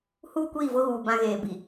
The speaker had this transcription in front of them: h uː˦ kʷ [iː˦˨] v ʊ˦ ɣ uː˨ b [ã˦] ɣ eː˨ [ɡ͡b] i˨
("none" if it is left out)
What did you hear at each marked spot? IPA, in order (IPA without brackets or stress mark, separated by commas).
iː˦˨, ã˦, b